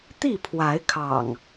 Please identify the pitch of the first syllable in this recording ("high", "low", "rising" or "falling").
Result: falling